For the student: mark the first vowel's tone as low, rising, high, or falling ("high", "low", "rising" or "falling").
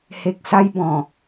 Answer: low